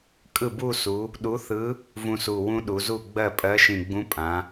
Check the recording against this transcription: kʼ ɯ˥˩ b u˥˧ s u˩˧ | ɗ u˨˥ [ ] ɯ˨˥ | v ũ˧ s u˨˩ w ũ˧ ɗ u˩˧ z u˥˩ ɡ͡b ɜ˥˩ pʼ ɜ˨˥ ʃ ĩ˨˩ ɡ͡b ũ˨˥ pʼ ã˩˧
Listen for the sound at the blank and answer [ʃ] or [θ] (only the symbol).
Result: θ